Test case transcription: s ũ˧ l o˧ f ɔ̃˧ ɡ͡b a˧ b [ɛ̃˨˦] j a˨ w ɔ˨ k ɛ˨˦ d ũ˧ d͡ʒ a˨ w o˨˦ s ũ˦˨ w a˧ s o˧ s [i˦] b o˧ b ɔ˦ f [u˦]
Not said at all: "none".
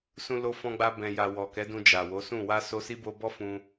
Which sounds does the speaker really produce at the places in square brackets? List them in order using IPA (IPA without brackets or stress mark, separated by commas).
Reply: ɛ̃˨, i˦, ũ˦